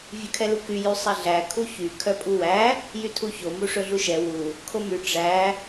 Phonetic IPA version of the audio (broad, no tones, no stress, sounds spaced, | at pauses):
vʲ ʉ kʰ ɛ l u k y j y sˤ ɛ ɮ æ kʰ u ç y kʰ œ pʼ u w æ | j y tʰ u ç o m u ʂ ɵ ɮ u ʃ ɛ w u | kʰ o m y ʈ͡ʂ æ